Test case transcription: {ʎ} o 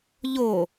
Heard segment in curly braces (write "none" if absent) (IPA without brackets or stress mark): ʎ